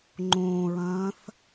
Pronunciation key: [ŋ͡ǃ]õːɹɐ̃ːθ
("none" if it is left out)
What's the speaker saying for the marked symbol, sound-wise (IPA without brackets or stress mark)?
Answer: ŋ͡ǃ